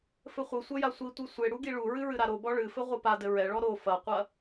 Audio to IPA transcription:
fɘχʷɘsʷɐ jasʷitʷi sʷe ɽuɡiɭuɹɨ ɹɨɾaɾobɔ ɭɨfɘ ʁʷɨpadɘ ɹɛɭɔ ɾo fɐqʷɐ

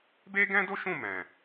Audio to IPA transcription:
be˦ɡɛ̃˦do˦ʃũ˦˨ mɛ̃˨

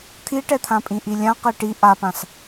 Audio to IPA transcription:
t̪ʰiʈɛt̪ʰãpʼĩ ʔilʲãqe ʈi ʔapãs

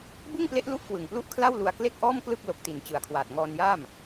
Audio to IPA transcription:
bɯ˥˩ŋple˦˥ʔlu˦˥ʔ kwɯ˨˩ŋplu˥˩ʔkʰla˥˩wlu˧a̯ kle˥˩k̚ʔɔː˥˩mklɯ˥˩k̚ lo˨˩k̚ti˨˩n t͡ɕɯ˨˩a̯kʰwaː˨˩t̚ ŋɔː˧njaː˥˩m

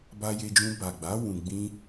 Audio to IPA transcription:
ba˧je˧d͡ʒũ˧ ba˨ɡ͡ba˨˦ wũ˧ ɡ͡bĩ˦

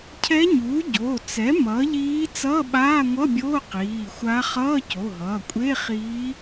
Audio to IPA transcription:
cʰɛ˧˥ɲuː˩˥ ɟo˩˧˩t͡sɛ˩˥ mʌː˩˥ʎiː˧˥ t͡sʌː˧˥˧ɓaː˧˥˧ŋʷʌ˧˥˧bʲoː˧˥˧ qiː˩˧˩xʷa˧˥ χʌː˧˥˧co˩˧˩ɦʌː˩˧˩ kʷʼe˧˥˧χiː˧˥

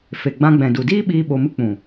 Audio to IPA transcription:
fe˨ɡ͡bã˧ ɡ͡bɛ̃˨du˨diː˦ɓiː˧ ɓo˧mɨ˦ k͡pũ˨

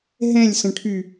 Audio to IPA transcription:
ɦɛ̃lʲsə̃ʈʰy

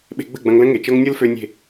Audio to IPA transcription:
ɓe̤˧ɡ͡bə̤˦˨ɡ͡bɐ̃˧ŋlə̃˦ ŋe˨t͡ʃɤ˦ŋ nʲɤ˦lfø˧ nʲe̤˦˨

